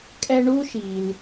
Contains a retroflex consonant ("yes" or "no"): yes